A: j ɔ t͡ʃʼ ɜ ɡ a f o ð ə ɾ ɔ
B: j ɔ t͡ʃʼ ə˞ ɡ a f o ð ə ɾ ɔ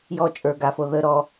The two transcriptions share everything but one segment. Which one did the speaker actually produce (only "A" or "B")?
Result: B